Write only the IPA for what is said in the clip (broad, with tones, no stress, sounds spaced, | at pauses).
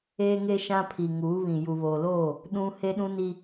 eː˦ ŋ e˦ ʃ ã˦ pʰ i˨ ŋ uː˨˦ β ĩ˨ j u˨ β oː˨ l oː˦˨ | ɗ ũ˦ h e˦ ɗ ũ˦ n i˦